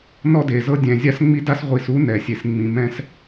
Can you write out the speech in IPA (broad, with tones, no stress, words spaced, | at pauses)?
nɔ˦de˨zɤ˦ dʲɛ̃˨zʲa˦sŋ͡mi˦da˦s ʁʷi˨su˦ nɛ˨sʲe˨s ŋ͡mĩ˨mɛ̃˦s